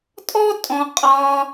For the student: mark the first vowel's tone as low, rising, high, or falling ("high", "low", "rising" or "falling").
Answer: high